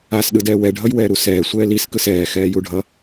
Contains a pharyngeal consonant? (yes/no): no